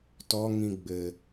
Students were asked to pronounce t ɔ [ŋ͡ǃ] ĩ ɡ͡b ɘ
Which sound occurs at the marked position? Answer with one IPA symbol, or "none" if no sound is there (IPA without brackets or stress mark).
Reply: ŋ